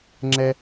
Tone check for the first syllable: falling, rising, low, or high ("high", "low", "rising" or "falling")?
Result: high